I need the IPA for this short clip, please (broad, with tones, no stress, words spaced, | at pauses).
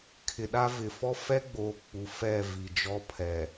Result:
kʰɪ˨ɗa˦vɪ˨ fɔ˦fɛ˦ɡ͡boː˨ k͡pu˨fɛ˦˨ vi˨d͡ʒɔ˦pʰɛ˨